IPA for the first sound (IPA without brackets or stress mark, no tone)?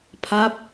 pʰ